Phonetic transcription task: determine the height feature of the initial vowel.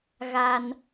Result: low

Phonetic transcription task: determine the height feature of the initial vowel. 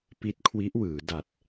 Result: high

